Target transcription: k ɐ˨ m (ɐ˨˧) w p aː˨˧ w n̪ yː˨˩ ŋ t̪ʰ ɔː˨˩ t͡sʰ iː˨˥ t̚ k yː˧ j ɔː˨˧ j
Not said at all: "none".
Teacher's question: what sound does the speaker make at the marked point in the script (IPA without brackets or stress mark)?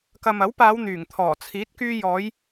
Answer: ɐ˨˥